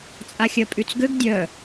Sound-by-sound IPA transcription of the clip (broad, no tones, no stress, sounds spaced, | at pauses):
t͡sʼ a xʲ œ pʼ y t͡s ɡ ø ɡ dʲ œ